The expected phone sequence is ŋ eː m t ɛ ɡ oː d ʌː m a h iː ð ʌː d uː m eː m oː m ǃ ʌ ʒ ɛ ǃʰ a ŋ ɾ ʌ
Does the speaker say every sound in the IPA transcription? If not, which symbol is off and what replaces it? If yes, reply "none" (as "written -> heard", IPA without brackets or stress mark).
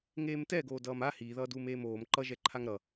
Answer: none